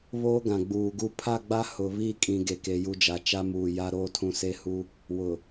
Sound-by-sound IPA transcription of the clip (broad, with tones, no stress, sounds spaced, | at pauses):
β oː˦ ɡ ã˨ ɡ͡b uː˨ ɡ u˦ pʰ a˦˨ ɡ͡b a˦ h ʊ˨ β i˦˨ kʼ ĩ˦ ɡ e˦ k e˦ j u˦ d͡ʒ a˦ t͡ʃ a˦ m uː˨ j a˦ ɾ oː˦ tʰ ũ˦ s e˦ h u˦ | w ʊ˨